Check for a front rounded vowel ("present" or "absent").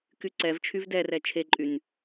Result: present